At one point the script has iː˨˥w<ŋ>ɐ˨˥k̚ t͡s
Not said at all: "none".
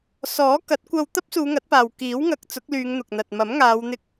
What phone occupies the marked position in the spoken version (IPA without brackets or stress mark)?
ŋ